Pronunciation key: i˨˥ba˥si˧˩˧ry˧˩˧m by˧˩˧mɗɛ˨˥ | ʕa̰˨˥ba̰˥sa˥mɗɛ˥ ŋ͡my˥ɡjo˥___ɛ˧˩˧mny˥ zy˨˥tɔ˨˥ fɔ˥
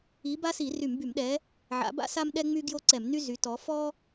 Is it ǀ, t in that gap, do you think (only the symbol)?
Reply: ǀ